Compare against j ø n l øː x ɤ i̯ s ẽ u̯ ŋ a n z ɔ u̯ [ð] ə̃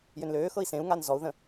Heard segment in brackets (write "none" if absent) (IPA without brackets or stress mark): ð